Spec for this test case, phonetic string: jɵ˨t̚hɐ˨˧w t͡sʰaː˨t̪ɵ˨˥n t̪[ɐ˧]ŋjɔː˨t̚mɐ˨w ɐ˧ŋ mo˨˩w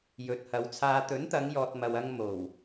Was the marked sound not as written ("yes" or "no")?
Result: yes